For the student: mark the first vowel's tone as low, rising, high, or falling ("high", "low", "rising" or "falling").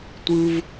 high